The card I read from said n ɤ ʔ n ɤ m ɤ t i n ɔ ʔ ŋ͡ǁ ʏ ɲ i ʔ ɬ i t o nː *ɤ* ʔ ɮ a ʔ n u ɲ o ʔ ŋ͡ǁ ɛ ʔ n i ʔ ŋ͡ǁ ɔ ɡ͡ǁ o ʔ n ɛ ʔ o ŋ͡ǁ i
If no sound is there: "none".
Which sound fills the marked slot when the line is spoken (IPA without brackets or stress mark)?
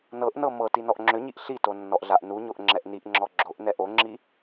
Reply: ɔ